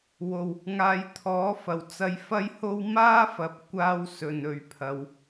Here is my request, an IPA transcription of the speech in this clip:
w o˨˩ w | ŋ aː˨ j t̪ʰ ɔː˨˥ f ɐ˨˩ w t͡s ɐ˧ j f ɐ˥ j h o˥ w m aː˥ f ɐ˨˥ p̚ kʷ aː˧ w s ɵ˧ n ɵ˧ ɥ pʰ ɐ˧ w

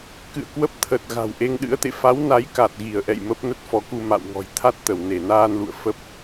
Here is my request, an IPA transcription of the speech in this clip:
k ɨ̰˧˨ ə̯ k w ə˦˥ p̚ t̪ʰ ə˨˩ t̚ ɣ a̤˨˩ w ʔ e˧ ŋ ɗ ɨ̰˧˥ ə̯ t̪ ḛ˧˨ f a˨˦ w n a˨˦ j k a˨˩ t̚ ɣ i˧˩ ə̯ ʔ ɛ̰˧˨ j m ə˦˥ p̚ n ə˦˥ t̚ f ɔ˨˦ k u˧ m a̰˧˨ w ŋ ɔ̤˨˩ j t̪ʰ a˦˥ t̚ t̪ ə˧˩ w n e˧˩ n aː˧ n l ṵ˧˨ ə̯ f ə˦˥ p̚

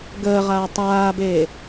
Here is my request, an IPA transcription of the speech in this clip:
ɡ əː ʁ aː tˤ aː b eː

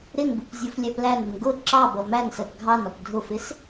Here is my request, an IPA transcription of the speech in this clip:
ɾ ɪ n b u p zʲ u f lʲ æ p l æ n ə n ɡ ʊ ǁ ɑ b ʌ m æ n s ɜ p ɡʱ ɑ n ɒ p dʱ ʊ f ɪ s

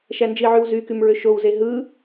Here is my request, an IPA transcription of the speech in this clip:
ʃ æ n d͡ʒ i ʕ y w z y k y m ɹ ø ʃ o w z e ɦ ɯ

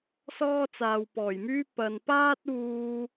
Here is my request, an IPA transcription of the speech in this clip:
s ɔː˥ t͡s aː˨ w p ɔː˨˩ j m yː˥ p ɐ˨ n p aː˥ t̚ uː˧

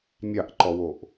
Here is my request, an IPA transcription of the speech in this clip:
mʲ ɑ ʔ ǃ ɔ w o ʔ

